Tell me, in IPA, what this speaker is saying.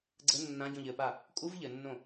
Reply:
ɡ͡ǀ ɘ nː ã ɟ õ ʎ ɘ p a | kʼ u v ʎ ɘ nː õ

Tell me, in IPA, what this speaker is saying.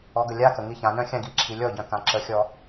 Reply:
ɔ ɡ ə lʲ a k ə ŋ i ç ã n œ̃ xʲ ã ɡ i ǁʰ i lʲ ɔ ɟ œ̃ k ã ǁ ə xʲ ɔ

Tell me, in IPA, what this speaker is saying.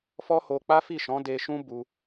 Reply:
f ɔ˦ h o˧ k͡p a˦ f i˦˨ ʃ ɔ̃˨˦ d e˧ ʃ ũ˦ b u˧

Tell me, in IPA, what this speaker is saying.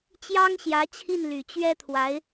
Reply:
t͡ɕ j ɑ˥ ŋ ɕ j ä˧˥ t͡ɕʰ i˥˩ n l y˨˩ t͡ɕ ɥ ɛ˥ t̪ʰ w a˧˥ ɪ̯

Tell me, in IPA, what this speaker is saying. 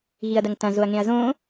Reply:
ɣ i ɐ̯ d ɐ ŋ t ɐ̃ z o ɐ̯ ŋ ẽ ɐ̯ z õ

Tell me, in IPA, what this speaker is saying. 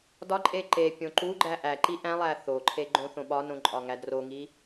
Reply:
d ɒ ǃʼ e ǃ e pʲ õ ǃ u ɡ͡ǃ æ ʔ æ ǃ i ʔ æ̃ lˠ æ θ o ǃʰ e ɡ͡ǃ õ θ õ ɓ ɒ n õ ǃʼ ɒ ŋ æ d r o ŋ i

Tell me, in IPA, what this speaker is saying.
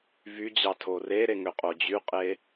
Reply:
v y d͡ʑ ɑ tʰ o r e ɾ e ŋ ø qʼ o d͡ʑ y qʼ e

